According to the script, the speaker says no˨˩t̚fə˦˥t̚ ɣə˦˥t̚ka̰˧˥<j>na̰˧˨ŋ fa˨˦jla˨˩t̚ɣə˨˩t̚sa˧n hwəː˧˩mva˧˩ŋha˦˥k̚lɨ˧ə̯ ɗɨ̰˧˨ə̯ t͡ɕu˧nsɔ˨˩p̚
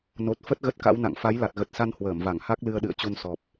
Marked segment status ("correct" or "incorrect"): incorrect